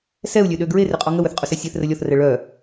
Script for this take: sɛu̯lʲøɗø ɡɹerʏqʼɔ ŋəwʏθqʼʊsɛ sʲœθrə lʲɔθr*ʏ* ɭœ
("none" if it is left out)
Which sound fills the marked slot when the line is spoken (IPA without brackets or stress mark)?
ɛ